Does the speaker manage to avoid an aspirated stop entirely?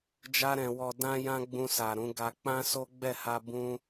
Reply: yes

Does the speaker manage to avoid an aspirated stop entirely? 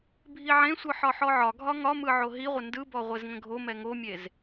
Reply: yes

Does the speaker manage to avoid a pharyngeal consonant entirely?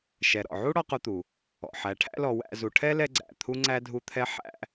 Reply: no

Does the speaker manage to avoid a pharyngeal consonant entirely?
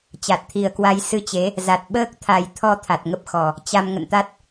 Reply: yes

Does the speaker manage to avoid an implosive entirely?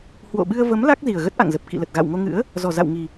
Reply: no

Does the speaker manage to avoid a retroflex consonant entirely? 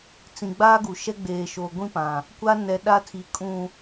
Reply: yes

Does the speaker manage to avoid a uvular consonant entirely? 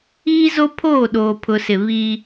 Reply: yes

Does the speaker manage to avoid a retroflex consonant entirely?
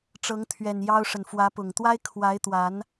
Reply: no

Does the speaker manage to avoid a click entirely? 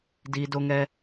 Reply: yes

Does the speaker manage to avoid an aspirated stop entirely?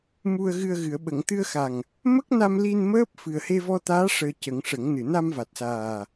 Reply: yes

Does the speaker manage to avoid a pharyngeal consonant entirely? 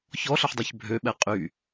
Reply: no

